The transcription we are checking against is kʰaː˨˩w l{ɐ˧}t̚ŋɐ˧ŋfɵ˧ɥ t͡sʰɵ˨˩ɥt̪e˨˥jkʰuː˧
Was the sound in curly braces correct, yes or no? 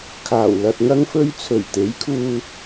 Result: no